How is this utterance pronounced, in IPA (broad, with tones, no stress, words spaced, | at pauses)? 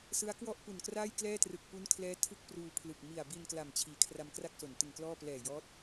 sɯ˦˥a̯kwɔ˥˩ʔ pu˨˩nkraː˥˩jklɛː˥˩trɯ˨˩k̚ pu˦˥nkʰlɛː˦˥ tʰɯ˥˩k̚pruː˧pʰlɯ˨˩k̚ mi˨˩a̯bi˧n kla˨˩mt͡ɕʰiː˩˦ kʰra˧mkra˥˩k̚so˩˦n tɯ˨˩ŋklɔː˥˩ plɛː˨˩jɔː˦˥t̚